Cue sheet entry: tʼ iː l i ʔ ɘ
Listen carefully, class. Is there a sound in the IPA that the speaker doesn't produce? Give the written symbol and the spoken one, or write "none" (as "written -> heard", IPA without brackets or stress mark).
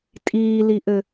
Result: none